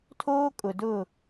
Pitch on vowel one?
high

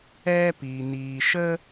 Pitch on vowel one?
high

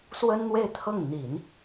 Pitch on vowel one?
high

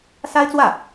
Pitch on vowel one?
high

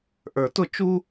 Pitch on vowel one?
low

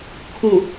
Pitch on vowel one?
low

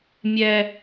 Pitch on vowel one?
high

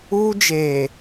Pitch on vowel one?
high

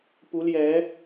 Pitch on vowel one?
rising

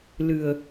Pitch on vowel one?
low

